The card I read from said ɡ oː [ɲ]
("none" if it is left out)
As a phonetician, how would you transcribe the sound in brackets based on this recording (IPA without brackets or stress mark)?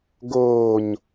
ɲ